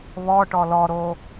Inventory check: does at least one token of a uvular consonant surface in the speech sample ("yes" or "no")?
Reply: no